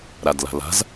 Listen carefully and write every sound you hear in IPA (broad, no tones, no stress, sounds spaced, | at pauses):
ɾ a d l a̤ l a̤ z